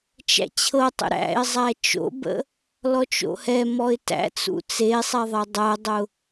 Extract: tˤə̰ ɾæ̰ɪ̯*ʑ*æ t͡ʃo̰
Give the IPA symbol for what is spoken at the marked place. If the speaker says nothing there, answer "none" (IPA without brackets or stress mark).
zˤ